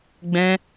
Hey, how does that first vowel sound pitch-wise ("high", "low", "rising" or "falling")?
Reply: high